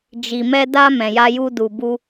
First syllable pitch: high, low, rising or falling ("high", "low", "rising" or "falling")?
low